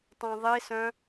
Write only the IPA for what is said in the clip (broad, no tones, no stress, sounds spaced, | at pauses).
tˤ ã ðˤ i s œ̃